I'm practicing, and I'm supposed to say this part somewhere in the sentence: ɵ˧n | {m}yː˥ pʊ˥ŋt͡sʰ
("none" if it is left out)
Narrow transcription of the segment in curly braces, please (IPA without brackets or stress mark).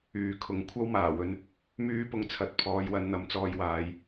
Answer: m